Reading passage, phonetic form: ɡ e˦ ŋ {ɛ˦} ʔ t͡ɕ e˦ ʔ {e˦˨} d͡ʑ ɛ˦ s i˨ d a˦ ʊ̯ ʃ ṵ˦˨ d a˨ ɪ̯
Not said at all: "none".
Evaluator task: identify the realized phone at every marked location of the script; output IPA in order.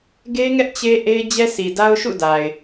ɛ˦, e˦

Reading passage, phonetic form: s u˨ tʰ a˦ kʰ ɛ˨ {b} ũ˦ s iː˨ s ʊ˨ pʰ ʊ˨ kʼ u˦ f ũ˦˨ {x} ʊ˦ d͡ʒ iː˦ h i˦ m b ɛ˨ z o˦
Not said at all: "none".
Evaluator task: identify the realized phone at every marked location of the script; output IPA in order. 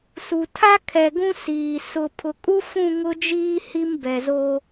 ɡ, ŋ

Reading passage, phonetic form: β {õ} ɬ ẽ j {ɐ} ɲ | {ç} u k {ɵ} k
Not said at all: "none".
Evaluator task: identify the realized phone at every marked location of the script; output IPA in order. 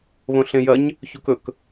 õ, ɐ, ç, ɵ

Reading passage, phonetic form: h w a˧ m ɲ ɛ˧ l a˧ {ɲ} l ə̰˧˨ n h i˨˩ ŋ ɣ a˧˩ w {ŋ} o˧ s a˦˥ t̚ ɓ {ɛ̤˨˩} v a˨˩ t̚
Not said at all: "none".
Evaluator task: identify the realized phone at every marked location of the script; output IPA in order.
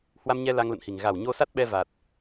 ŋ, ɲ, ɛ˧

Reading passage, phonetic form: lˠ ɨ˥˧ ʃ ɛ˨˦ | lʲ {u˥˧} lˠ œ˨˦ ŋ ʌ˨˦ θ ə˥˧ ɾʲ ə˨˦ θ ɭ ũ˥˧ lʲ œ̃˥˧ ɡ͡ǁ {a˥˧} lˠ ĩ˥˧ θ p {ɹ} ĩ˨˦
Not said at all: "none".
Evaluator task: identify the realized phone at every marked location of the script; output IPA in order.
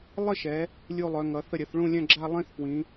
u˥˧, a˥˧, w

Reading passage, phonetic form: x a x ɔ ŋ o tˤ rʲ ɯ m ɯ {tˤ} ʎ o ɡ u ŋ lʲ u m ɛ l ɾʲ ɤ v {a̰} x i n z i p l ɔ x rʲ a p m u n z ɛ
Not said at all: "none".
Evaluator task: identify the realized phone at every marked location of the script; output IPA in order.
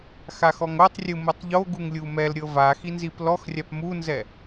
tˤ, a

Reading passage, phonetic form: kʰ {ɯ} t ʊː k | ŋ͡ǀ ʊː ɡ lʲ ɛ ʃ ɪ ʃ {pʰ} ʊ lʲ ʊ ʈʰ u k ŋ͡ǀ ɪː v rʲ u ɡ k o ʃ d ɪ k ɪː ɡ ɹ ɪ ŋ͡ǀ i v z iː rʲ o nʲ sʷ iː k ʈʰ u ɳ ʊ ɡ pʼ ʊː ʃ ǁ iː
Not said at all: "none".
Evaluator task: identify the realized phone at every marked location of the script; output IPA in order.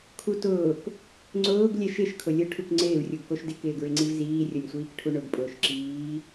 u, kʰ

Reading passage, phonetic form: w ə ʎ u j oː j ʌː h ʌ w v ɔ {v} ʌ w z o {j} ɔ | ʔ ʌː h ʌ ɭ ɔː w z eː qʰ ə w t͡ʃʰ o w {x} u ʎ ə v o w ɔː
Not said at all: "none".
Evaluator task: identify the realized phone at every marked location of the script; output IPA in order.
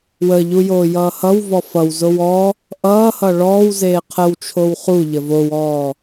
f, w, χ

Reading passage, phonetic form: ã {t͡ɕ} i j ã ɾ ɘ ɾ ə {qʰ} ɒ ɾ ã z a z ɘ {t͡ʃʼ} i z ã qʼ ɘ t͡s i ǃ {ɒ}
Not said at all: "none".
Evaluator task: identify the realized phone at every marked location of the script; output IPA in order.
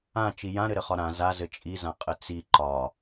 t͡ʃ, χ, t͡ʃʼ, ɒ

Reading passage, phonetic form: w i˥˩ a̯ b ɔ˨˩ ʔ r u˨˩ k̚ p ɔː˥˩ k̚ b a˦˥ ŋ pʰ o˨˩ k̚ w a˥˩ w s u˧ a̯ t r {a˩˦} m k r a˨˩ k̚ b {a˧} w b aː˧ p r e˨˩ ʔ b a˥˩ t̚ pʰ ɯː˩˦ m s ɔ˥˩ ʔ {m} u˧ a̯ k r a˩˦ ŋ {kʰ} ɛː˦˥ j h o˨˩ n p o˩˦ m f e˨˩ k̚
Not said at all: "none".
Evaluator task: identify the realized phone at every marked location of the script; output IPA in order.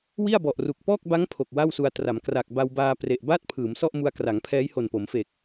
a˩˦, a˧, m, pʰ

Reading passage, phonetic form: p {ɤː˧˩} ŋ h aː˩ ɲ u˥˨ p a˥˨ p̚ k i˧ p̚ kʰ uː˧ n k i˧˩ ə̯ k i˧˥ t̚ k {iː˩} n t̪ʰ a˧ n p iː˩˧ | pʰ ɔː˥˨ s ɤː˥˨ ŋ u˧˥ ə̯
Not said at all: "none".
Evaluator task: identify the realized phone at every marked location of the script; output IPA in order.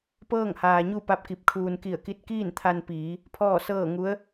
ɤː˥˨, iː˥˨

